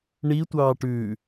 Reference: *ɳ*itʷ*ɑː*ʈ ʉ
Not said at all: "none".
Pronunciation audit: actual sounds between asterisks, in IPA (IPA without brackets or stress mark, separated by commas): ɳ, ɑː